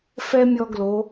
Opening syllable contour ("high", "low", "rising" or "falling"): high